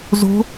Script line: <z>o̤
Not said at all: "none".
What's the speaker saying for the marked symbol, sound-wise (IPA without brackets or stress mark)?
z